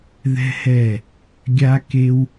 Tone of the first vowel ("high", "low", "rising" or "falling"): high